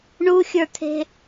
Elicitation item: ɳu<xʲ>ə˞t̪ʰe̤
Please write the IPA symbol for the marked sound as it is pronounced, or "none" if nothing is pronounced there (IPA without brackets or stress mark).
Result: xʲ